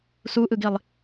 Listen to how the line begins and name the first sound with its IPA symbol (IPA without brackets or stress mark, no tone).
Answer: s